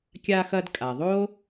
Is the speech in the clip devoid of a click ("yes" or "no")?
yes